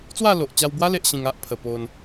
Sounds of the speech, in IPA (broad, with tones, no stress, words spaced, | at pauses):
t͡swa˥˧lo˨ʔt͡ɕa˧wbwa˦ le˦ʔɕĩ˧ŋ a˦ʔ pʰə˨˩po˧n